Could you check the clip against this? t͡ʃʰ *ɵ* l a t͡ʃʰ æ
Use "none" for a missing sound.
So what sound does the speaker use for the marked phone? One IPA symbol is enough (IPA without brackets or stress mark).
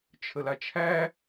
ə